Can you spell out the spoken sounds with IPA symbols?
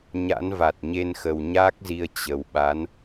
ɲ a̰˧˥ n v a˨˩ t̚ ɲ e˧ n x ə˨˩ w ɲ aː˦˥ k̚ z i˧ ə̯ t͡ɕ ə˨˩ w ɓ a˨˦ n

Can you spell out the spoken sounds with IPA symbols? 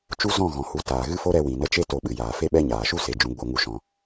t͡ʃ u˦ z ɔ̃˦˨ ɣ ɔ̃˨ h u˨˦ t aː˨ ɣ ɨ˦ f o˦ ɾ ɛ˧ w ĩ˨ n ə˧ t͡ʃ e˦ t o˧ ɓ ɨ˨ j aː˨ f e˦ ɓ ɛ˦ ɲ aː˨ ʃ u˦ s e˨ d͡ʒ ũ˨˦ ɡ͡b o˨˦ ŋ u˧ ʃ ɔ̃˧

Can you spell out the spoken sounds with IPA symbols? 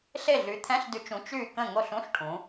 ɬ e˥˨ ɮ y˨˥ t̪ʰ ɛ̃˧˥˧ ɬ d y˨˥ t͡ʃ ũ˨˥ t͡ʃ y˥˨ k ə̃˥˨ ŋ o˥˨ ɬ ũ˧˥˧ ɬ ʈʰ ũ˩˧

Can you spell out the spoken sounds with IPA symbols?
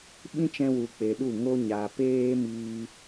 ɓ ĩ˦ t͡ʃ ɛ̃˧ w u˨ k͡p e˨ ɗ u˦˨ ŋ o˦ ɲ a˨ p eː˧ m iː˦

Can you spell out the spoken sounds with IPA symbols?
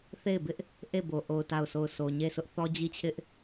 θ e˦˨ ɪ̯ b ɪ˦ ʔ | ʔ e˦˨ b o˨ ʔ o˨ ʊ̯ t a˦˨ ʊ̯ sʰ o˦˨ ʊ̯ sʰ o˨ ɲ e˦˨ s ʊ˦ ʔ θ ɔ˦ d͡ʑ i˦ t͡ɕʰ ɪ˦ ʔ

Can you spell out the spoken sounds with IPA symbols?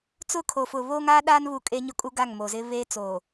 t͡s ʊ˦˨ kʰ o˨ f ʊ˨ β oː˦ ŋ aː˦ ɗ aː˦ n β u˨ kʼ e˦ ɲ ʊ˦ kʼ u˦ ɡ a˦˨ ŋ m oː˨ z ɪ˦ β eː˦ t͡s oː˨

